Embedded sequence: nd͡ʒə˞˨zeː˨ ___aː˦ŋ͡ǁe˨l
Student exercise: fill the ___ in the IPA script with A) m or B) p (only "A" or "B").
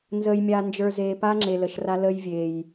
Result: B